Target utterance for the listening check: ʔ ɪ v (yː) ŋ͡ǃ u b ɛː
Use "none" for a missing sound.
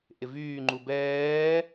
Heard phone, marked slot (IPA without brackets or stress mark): yː